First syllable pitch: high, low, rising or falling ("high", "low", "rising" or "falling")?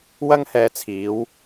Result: high